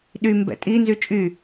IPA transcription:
ɗ y m b ɛ̰ tʼ i n z y t͡ʃʼ y

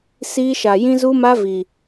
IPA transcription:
s iː˦ ʃ a˧ j ĩ˦ z u˦ m a˦ v i˧

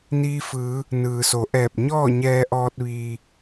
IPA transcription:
n iː˧ f ɯː˩˧ | n ɯː˩ s o˩˧ ʔ ɛː˧˩ p̚ ɲ ɔː˥˨ ɲ ɛː˧ ʔ ɔː˧ t̚ ʋ iː˩

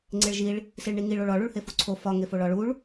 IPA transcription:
ŋ͡ǀ e ɭ ʒ i ɭ | s i ɭ ɳ i ŋ i ɭ o ɭ ɒ ɭ u ɭ h e f u ǀʰ o f ɒ ŋ e f o ɭ ɒ ɭ u ɭ

